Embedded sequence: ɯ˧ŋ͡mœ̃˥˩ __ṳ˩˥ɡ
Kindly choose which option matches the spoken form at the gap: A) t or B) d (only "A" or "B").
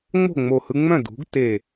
B